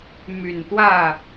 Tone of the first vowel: low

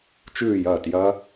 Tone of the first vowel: falling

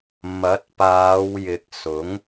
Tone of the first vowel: rising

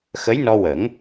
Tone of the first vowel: rising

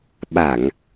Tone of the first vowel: low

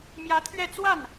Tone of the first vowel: rising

